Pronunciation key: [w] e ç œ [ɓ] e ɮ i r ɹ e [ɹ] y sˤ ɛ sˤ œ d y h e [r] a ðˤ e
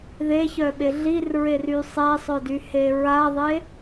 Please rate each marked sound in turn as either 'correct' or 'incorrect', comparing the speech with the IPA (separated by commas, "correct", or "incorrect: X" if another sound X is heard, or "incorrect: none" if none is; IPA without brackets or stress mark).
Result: incorrect: ð, correct, incorrect: r, incorrect: ɹ